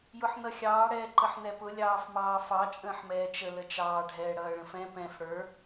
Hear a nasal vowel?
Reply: yes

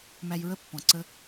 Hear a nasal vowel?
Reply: yes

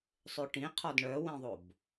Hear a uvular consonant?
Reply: yes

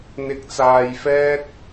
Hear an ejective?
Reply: no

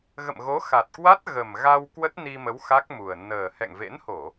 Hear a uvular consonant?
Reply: no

